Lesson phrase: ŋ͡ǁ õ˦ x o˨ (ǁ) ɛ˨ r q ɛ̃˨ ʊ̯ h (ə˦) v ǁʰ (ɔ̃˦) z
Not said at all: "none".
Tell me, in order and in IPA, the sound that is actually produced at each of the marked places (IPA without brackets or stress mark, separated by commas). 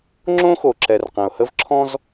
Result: ǁ, ə˦, ɔ̃˦